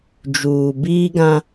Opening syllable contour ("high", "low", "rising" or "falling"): low